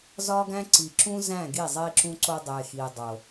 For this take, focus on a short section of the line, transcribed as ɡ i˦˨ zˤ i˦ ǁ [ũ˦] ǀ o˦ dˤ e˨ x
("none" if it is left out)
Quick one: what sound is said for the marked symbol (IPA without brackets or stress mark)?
ũ˦